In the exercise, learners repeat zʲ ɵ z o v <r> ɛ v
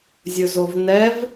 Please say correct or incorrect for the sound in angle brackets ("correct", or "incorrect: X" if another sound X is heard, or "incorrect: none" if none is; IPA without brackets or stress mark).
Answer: incorrect: n